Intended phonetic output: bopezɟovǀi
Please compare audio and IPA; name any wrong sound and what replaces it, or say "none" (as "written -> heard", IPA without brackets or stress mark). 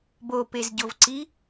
none